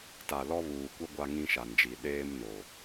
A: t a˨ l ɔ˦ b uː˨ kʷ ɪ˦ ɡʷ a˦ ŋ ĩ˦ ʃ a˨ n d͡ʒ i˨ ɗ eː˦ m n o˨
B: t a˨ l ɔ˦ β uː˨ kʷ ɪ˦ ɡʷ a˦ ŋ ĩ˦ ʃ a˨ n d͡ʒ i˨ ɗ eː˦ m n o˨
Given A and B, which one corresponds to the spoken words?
B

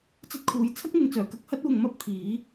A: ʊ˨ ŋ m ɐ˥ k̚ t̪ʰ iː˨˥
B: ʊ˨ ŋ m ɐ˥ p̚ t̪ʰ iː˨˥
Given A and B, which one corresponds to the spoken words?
B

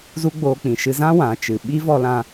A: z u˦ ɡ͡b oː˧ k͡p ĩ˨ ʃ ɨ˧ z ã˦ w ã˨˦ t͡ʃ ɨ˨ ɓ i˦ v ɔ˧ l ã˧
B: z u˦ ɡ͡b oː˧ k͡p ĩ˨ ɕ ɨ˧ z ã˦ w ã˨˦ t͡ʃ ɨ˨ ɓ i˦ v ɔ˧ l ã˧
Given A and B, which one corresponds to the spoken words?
A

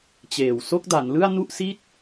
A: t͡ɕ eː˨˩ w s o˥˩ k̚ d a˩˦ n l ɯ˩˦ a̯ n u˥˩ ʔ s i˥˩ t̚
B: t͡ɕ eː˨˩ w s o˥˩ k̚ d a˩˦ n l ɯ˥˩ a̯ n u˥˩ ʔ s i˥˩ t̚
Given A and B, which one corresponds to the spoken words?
B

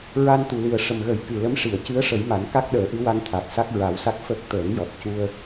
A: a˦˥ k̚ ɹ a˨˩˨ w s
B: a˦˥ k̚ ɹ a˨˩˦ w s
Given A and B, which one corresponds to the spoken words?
B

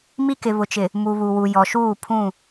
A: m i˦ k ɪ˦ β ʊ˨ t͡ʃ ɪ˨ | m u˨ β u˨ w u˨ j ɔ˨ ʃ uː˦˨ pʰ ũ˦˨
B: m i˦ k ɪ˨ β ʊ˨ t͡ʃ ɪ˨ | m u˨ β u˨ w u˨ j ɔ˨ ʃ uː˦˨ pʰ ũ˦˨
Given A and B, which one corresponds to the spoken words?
B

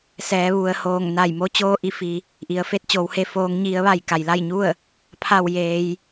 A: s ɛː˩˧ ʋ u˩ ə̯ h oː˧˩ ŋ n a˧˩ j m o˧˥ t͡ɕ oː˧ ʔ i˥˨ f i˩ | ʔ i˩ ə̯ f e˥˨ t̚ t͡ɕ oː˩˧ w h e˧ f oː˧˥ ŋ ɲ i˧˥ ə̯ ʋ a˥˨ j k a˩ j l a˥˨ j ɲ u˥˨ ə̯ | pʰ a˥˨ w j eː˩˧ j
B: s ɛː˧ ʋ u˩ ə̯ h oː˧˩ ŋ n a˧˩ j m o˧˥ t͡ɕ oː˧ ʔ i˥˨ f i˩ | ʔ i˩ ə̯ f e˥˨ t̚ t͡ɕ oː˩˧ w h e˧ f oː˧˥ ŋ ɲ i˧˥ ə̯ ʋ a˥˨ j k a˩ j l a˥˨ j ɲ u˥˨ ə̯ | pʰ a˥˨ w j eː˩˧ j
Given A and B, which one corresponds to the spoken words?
A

